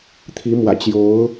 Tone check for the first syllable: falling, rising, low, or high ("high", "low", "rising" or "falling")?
rising